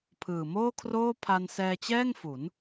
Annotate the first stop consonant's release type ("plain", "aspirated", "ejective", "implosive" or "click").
aspirated